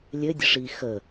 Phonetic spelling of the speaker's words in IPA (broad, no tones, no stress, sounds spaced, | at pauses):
lʲ ɘ dʲ ə ʂ i x ə